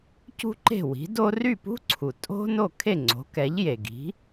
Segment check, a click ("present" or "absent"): present